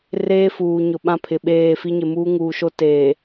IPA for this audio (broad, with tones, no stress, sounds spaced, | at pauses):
r eː˦ f uː˨ ɲ ʊ˨ ɓ ã˦ pʰ ɪ˨ ɓ eː˦˨ f i˦ ɲ ɪ˨ m uː˦ ŋ uː˨ ʃ o˦ t eː˨